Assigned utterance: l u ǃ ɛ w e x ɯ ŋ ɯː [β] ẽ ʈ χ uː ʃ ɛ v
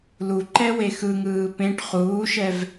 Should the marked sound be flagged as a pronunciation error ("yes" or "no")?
yes